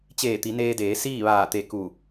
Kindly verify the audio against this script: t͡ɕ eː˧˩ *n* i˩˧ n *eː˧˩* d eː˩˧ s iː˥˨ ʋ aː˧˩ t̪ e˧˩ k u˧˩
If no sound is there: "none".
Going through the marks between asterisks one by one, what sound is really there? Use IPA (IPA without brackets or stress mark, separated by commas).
t̪, eː˧